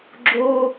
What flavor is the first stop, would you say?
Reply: click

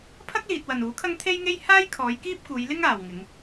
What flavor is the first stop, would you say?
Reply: aspirated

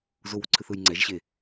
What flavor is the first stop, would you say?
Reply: click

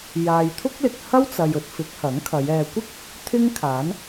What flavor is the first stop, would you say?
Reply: aspirated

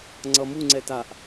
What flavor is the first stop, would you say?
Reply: click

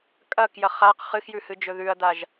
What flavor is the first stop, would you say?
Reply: ejective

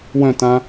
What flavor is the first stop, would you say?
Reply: plain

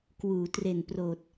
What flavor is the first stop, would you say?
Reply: plain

